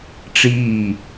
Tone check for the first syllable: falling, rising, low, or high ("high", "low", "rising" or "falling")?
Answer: falling